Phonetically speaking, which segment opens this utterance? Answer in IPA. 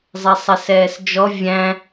zˤ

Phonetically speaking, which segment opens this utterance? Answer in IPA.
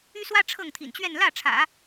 y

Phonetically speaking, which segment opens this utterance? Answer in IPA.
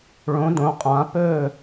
ɭ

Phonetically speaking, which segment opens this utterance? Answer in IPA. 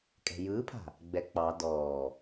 kʼ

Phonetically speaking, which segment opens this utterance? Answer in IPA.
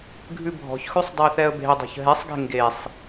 ɡʱ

